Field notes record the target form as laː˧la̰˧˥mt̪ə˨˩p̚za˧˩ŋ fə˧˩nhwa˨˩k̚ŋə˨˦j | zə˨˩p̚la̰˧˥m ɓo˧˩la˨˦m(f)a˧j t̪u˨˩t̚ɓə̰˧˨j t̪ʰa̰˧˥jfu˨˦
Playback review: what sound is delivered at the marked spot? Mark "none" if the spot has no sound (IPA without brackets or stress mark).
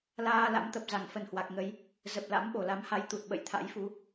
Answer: h